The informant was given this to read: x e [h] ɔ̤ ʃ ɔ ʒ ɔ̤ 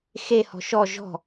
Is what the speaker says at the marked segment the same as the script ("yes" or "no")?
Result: yes